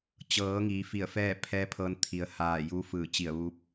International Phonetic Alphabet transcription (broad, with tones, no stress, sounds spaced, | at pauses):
t͡ɕ ɤː˩˧ ŋ iː˩˧ f i˧˩ ə̯ f ɛː˥˨ pʰ ɛː˧˥ pʰ ɤː˧ n t̪ʰ i˩˧ ə̯ h aː˧˩ j u˧˥ f ɯː˧˩ t͡ɕ i˧˩ ə̯ ʋ uː˧˥ p̚